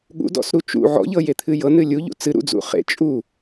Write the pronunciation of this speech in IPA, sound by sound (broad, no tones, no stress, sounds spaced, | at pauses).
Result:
ɠ ṵ d ɔ̰ s ɾ u t͡ʃ ṵ ʕ ɔ̰ ʎ ɤ j e t̪ʰ ɨ j ɤ n ɨ lʲ u ʎ ṵ t͡s ɨ ɾ ṵ d͡z ṵ χ ḛ t͡ʃʼ u